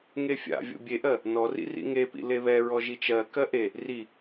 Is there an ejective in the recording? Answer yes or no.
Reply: no